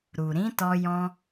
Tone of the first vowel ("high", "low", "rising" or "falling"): low